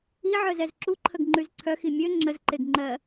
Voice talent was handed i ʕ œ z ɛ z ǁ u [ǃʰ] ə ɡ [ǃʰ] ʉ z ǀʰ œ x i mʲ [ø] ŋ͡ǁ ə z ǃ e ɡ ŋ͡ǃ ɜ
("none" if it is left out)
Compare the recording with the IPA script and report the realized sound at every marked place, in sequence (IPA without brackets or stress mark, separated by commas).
ǃʰ, ŋ͡ǃ, ø